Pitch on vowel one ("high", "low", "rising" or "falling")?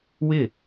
falling